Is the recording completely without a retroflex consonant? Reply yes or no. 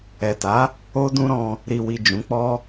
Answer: yes